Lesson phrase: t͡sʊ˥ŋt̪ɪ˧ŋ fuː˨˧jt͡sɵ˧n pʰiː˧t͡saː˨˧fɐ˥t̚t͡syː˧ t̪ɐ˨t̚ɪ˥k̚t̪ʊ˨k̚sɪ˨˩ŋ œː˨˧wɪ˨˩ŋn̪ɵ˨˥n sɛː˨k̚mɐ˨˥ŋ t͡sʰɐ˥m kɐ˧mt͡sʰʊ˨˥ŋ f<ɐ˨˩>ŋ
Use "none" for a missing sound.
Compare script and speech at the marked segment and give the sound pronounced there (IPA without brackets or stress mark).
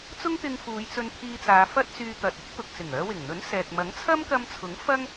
ɐ˥